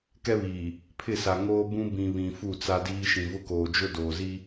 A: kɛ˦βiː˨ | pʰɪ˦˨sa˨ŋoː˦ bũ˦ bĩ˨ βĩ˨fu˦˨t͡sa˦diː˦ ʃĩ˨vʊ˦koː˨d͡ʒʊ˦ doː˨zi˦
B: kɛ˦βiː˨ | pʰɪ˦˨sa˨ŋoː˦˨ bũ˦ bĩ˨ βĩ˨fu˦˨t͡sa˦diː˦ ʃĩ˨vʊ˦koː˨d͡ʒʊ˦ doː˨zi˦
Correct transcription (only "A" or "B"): A